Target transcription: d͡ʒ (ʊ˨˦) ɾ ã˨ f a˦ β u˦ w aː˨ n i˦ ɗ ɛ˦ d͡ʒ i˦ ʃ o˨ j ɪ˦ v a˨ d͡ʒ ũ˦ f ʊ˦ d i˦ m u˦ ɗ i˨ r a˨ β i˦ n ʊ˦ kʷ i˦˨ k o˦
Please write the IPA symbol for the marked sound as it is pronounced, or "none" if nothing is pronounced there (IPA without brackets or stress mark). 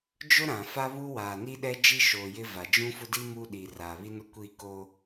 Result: ʊ˦